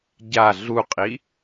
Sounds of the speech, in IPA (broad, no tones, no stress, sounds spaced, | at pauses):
ɟ a ɮ u qʼ i